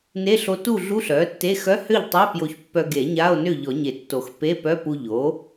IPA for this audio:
n e˧˥˧ ɬ o˧ t u˥˨ ɮ u˧˥˧ ɬ œ˩˥ tː e˧˥˧ x œ˧˥˧ h ø˥˨ ʎ tˤ e˧˥˧ p j o˧ ç pː œ˧ ɡ e˨˩˦ ɲ a˧˥˧ o̯ n ø˥˨ ʎ ɔ˨˩˦ ɲ e˨˩˦ tː o˨˩˦ x p e˧˥˧ p œ˧˥˧ p u˧ ʎ o˩˥

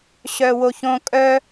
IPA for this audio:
ɕ œ w o ç õ kʼ œ

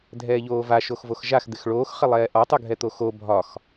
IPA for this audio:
dʱ ɛː ʎ oː v a ʃ o x v o x ʒ a x d̪ ɪ x ɭ oː x χ ɪ lˠ ɛː ʔ ɒ tˤ u ɡʱ ɛ t̪ o x o bʱ ɒ x

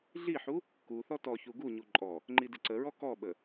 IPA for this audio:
ɮ i ħ u | k u θ ɔ t ɔ ç u ɡ u ɲ u ǃʼ ɔ | ŋ͡ǃ i d ɪ ǀ ə ɹ ɔ k ɔ ɓ ə

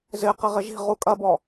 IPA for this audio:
z ɪ q ɪ ʁ ɪ ʒ i̤ ʁ u kʼ ɐ b ɔ

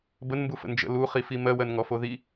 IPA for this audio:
b ə n m b u f ə̰ n d͡ʒ ə̰ l u χ i f i m ɜ w ɜ n ŋ ɔ f o ð i

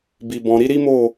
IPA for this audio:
b i˨ b ɔ̃˨ ɾ i˨˦ ɾ i˦ m o˦˨

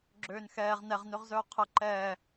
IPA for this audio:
ɡ͡ǁ øː n x ɛː ʁ n ɛ ʁ n ø ʁ z œː qʰ ə ǃ ɛː

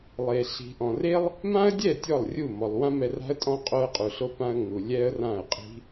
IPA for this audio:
lˠ e˨ ɬ i̤˨ ʔ ɔ̃˨ r e˦ lˠ | m ã˦ ə̯ dʲ ɛ˦˨ tʲ ɔ˦˨ lˠ rʲ u˦˨ m ɔ˨ lˠ w ã˦ m ɛ˧ r a̤˦ ə̯ tʼ ɔ̃˦ qʼ o˧ ə̯ qʼ u˨ ɬ o˧ p ã˧ ə̯ ŋ u˨ lʲ ɛ˦ ə̯ r ã˦˨ ə̯ qʼ i̤˦

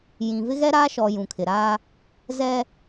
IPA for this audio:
j ĩ˨ v ɪ˦ ɣ ɛ˦ ɾ aː˦ ʃ ɔ˨ j ũ˨ kʰ ɪ˨ ɾ aː˦ | z ɛ˦

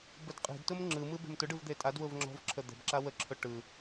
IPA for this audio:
b ə d qʼ e̤ d t ʊ m ŋ͡ǁ ɯ m ɯ b e̤ m t ʊ ɖ ɯ v d̪ e tʼ a d w ʊ v ŋ͡ǁ ɔ̤ v ǁʰ ə d̪ ə̤ b ǁ a w ə ǁʰ ʊ ʈ ɯ

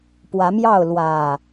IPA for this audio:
p w ä˨˦ m j ɑ˥˨ ʊ̯ l w ä˨˩

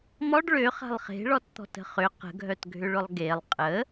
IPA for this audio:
m ɔ ɖ ɭ ø χ a̤ lˠ χ e̤ ɭ ɔ t t̪ ɔ̤ t ə̤ χ ʏ q ə̤ ɡʱ œ t ɡʱ ʏ ɭ ʊ lˠ ɡ e lˠ qʼ ə

